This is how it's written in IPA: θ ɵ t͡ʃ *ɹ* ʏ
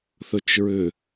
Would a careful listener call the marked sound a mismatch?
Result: no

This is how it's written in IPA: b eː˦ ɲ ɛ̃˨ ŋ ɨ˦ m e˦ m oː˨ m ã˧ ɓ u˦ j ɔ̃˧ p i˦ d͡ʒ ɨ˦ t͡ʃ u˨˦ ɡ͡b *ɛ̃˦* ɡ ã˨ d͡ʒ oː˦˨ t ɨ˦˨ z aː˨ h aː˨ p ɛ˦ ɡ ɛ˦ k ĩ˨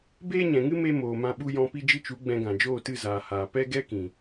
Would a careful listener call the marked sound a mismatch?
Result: yes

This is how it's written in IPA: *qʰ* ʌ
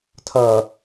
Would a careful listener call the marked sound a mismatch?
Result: yes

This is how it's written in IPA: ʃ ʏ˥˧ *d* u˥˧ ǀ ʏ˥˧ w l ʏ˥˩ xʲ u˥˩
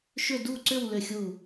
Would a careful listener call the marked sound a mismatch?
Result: no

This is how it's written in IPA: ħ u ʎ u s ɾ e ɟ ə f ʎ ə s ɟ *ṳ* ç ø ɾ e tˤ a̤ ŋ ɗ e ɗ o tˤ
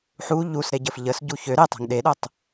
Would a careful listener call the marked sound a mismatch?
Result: yes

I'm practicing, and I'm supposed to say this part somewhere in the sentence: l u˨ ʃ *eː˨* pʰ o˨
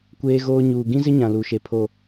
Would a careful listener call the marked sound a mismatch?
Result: yes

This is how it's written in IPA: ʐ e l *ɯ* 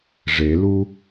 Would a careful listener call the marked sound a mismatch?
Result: yes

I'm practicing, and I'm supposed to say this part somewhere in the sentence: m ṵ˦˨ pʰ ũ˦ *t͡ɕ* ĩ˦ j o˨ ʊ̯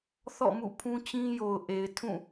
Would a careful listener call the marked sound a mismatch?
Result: no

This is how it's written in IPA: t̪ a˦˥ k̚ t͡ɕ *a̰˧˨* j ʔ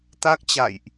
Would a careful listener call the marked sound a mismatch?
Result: no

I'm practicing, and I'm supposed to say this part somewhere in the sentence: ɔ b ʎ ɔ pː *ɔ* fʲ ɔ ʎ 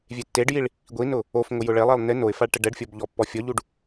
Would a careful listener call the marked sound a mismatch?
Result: no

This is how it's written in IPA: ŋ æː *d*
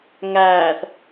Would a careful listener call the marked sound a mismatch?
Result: yes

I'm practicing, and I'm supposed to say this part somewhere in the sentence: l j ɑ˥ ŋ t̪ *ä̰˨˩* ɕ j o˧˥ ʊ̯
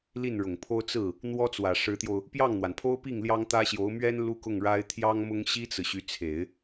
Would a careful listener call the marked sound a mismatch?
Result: yes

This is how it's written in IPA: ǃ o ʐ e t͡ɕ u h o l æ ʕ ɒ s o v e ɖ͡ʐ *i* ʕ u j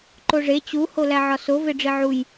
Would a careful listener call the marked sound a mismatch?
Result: no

